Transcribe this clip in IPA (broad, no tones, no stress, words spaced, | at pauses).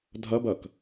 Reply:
dʱɐbɐk